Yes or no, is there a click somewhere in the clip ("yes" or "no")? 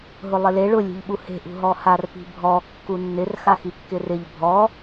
no